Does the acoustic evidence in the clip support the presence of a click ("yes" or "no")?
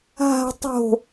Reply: no